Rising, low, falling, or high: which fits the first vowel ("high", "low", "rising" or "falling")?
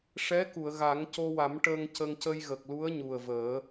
rising